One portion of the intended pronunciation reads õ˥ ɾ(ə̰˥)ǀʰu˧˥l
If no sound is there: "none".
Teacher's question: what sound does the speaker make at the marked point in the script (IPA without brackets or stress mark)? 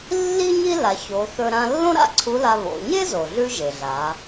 a̰˥